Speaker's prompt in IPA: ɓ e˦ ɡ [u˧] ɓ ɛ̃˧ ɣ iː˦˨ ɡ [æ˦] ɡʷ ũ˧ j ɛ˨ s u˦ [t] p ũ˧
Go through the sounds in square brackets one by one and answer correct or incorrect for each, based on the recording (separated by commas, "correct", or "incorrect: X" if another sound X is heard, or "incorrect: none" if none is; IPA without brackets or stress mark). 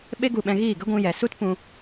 correct, incorrect: ə˦, correct